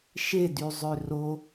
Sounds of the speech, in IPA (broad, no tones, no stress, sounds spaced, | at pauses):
ʃ e d y zˤ ø r o